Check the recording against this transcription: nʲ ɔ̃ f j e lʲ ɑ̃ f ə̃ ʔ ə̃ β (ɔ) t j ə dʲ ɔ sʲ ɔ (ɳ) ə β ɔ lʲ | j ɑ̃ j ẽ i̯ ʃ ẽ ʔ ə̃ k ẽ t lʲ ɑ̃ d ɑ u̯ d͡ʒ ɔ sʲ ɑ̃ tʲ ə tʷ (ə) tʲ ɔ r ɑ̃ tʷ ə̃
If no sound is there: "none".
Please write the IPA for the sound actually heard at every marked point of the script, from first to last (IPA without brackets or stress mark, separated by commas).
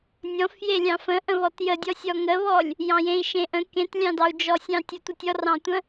ɔ, ŋ, ə